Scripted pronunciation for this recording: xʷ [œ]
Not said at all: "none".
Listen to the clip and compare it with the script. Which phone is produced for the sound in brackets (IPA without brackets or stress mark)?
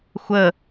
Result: ə